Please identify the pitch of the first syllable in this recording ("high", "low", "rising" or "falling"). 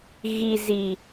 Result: low